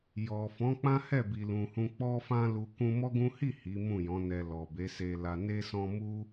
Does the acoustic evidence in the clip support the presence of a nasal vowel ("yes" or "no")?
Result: yes